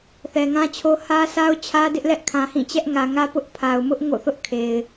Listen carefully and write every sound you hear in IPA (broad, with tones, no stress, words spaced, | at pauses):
θɛ˨ŋã˦t͡ɕʰo˦ hä˦ sa˦ʊ̯t͡ɕʰä˦dɪ˦ʔlɛ˦ʔ kʰã˨hĩ˦˨ t͡ɕɛ˦ʔŋä˨ŋä˦ pʊ˦ʔ pʰa˨ʊ̯mʊ˦ʔ ŋo̰˦˨θʊ˦ʔ kʰe˨ɪ̯